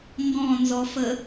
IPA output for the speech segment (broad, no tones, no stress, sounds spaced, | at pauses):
ŋ ɡ ɔ̃ n z ɔ f ə